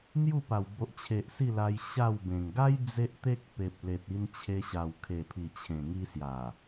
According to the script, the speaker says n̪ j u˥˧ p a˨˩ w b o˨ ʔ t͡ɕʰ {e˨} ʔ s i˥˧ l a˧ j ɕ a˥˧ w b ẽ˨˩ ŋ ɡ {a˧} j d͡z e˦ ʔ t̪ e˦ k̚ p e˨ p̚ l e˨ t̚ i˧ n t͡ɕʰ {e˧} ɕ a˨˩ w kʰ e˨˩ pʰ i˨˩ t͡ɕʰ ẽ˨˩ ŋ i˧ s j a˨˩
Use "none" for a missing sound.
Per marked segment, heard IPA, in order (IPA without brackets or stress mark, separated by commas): e˨, a˦, e˧